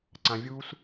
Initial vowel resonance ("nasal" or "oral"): nasal